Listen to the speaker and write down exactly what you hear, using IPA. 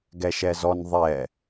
ɡ ɛ ʃ ɛ z ɔ n ðˤ ɛ

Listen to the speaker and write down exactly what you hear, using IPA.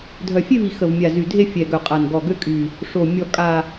dʱ œ˨˩ fʲ e˥˧ v i˨˩ x ə˨˩ v mʲ a˨˩ z y˨˩ dʱ e˥˧ fʲ ɛ˨˩ ɡ œ˨˩ qʼ a˨˩ n ɡ ɔ˨˩ ɡ ø˥˧ kʼ y˨˩ | ʂ o˨˩ mʲ ɔ˨˩ kʼ a˨˩

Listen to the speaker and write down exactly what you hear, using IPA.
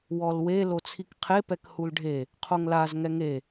w ɔ l w e l o t͡sʰ i k qʰ e p ɛ k h u l ɖʱ e | qʰ o ŋ l a z ŋ ɛ ŋ e

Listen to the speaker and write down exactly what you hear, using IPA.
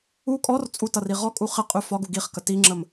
u kʼ ɔ r t͡sʼ u t ʌ r i ʁ ɔ kʼ u χ ɪ qʼ ʉ f ɒ ɡ u ɡ i χ k ə t i ŋ͡ǁ ə m

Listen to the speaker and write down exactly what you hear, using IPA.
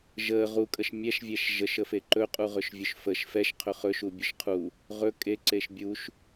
ʒ ə ʁ u kʼ ə ʃ mʲ ɛ ʃ vʲ ɛ ʃ ʒ ə ʃ ə f e ǃ ɵ qʼ u ʁ ɵ ʃ vʲ ɵ ʃ f ə ʃ f ɛ ʃ qʰ ɵ χ ɵ ʃ u bʲ ɵ ʃ qʰ u | ʁ ɵ kʼ e ǀ e ʃ bʲ u ʃ

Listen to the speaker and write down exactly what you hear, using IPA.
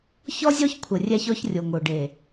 ç ɔ˦ zʲ ɔ˦ ç kʷʰ ə˨ rʲ æ˦ ç ɔ˦ ç rʲ o˨ ŋ o˨ ɖ e˨

